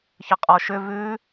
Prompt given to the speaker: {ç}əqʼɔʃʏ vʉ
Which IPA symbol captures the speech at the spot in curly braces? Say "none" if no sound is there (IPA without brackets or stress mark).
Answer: ç